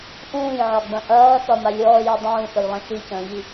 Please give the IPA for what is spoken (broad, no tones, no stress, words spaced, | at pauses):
ʔũːjʕɒɡ͡bɐ̃ ʔɐːθɒ malʲɔːjɔ dˤũːθəjlˠɐ̃ ʃicə̃ːʎi